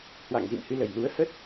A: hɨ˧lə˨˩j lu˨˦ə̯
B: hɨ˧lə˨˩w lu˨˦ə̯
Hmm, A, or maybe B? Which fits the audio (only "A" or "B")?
A